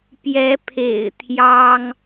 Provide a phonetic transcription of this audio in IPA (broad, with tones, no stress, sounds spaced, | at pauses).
p j ɛ˨˦ pʰ ḛ˨˩ ɪ̯ t̪ʰ j ɑ˦ ŋ